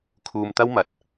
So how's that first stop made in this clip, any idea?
aspirated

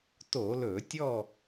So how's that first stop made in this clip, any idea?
plain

